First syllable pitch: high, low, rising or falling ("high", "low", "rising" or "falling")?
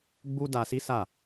high